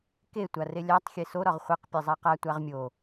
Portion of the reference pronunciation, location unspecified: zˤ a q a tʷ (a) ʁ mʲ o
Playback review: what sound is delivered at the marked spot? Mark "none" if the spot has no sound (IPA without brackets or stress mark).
a